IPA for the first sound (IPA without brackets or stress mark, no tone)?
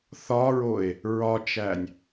θ